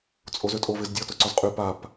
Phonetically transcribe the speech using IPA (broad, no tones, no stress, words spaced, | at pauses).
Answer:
t͡sʼozøtʼo vɪzdʲɔ tʊǀɔzqʼy pap